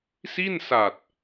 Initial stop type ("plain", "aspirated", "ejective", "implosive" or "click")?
plain